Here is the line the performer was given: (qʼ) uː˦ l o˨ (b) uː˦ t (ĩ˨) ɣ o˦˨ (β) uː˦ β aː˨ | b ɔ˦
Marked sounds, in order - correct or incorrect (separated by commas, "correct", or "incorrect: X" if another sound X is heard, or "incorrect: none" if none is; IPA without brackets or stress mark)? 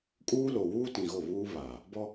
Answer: incorrect: kʼ, incorrect: w, correct, correct